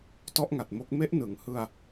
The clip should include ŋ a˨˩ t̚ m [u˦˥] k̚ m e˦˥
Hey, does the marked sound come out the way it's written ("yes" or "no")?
no